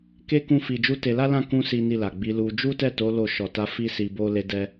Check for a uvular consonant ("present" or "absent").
absent